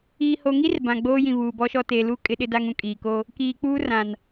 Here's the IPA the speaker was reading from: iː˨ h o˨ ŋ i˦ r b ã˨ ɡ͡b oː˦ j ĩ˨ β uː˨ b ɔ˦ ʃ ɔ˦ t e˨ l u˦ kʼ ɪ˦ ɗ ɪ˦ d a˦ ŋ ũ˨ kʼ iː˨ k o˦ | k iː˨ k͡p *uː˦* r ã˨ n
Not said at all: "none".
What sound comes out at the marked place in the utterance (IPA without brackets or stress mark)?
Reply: uː˦